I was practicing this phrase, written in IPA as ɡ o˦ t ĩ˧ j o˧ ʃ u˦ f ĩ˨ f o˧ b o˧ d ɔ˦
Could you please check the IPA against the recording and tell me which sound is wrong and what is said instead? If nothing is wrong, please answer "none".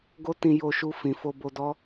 u˦ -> u˧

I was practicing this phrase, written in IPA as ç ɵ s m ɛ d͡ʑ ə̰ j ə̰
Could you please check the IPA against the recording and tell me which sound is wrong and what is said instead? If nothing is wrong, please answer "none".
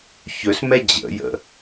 none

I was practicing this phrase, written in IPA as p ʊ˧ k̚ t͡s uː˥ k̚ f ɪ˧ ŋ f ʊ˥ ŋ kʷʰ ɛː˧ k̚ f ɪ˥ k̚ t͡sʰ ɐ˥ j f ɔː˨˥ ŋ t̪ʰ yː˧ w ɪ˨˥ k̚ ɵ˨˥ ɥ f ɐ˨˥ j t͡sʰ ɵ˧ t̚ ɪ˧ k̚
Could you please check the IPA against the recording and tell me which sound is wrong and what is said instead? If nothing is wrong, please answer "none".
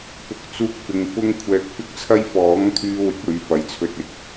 none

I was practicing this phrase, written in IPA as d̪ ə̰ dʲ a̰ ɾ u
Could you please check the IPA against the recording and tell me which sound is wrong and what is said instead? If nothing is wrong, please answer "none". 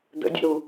a̰ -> ə̰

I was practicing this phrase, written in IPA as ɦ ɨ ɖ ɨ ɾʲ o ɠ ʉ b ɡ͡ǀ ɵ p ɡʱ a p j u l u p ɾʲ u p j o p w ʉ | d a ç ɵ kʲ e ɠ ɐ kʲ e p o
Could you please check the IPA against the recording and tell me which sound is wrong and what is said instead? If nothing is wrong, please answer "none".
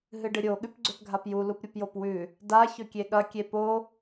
b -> p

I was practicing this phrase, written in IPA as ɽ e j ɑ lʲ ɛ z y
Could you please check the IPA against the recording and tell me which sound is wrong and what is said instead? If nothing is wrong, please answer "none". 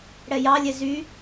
e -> ɛ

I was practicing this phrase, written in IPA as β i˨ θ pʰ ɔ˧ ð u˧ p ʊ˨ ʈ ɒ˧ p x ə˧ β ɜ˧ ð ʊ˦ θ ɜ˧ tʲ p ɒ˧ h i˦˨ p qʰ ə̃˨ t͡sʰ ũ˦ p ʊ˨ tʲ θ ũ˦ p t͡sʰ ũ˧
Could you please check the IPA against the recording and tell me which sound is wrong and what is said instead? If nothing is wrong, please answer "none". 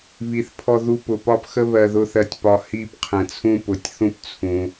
ʈ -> p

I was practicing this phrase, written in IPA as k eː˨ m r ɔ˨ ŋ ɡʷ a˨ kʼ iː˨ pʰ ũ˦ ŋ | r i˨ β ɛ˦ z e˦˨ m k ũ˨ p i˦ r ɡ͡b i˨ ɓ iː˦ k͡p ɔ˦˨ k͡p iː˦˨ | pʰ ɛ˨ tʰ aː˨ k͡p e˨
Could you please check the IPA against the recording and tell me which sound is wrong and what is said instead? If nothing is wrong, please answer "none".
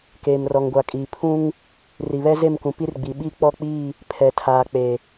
none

